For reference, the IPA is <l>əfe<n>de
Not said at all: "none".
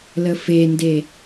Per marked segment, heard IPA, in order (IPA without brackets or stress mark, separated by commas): l, n